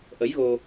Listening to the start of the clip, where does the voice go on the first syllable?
rising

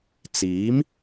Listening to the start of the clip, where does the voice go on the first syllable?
rising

